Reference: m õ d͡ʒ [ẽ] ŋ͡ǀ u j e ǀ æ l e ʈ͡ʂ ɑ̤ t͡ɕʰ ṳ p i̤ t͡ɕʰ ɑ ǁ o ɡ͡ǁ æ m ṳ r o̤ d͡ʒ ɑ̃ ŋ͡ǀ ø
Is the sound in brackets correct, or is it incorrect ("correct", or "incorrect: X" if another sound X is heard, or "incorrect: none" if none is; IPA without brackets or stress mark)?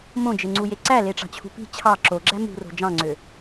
incorrect: e